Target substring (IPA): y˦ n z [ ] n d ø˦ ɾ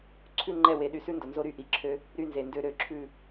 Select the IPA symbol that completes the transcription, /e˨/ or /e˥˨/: e˨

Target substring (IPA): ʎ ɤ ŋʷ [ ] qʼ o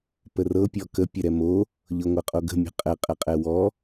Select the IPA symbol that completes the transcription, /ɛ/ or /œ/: ɛ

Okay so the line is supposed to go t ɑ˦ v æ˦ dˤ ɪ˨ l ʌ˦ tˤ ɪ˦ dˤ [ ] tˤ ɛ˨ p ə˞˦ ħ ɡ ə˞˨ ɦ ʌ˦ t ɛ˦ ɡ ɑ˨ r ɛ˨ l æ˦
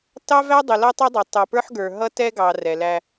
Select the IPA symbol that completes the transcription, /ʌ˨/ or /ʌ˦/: ʌ˨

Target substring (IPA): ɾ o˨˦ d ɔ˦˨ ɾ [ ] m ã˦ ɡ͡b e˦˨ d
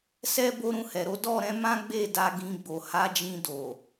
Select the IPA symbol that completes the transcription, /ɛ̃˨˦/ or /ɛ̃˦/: ɛ̃˨˦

